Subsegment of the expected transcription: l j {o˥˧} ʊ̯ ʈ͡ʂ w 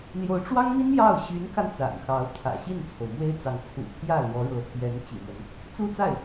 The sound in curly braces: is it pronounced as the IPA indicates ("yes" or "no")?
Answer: no